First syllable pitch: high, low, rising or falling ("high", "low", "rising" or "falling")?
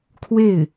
falling